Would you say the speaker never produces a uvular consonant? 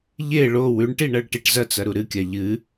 yes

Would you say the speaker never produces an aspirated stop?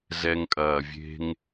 yes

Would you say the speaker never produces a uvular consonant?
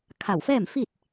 yes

